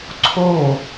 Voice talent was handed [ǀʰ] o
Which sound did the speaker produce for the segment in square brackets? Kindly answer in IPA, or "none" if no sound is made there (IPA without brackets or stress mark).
ǀʰ